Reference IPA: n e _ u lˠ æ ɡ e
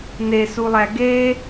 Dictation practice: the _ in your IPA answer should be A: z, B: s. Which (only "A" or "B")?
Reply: B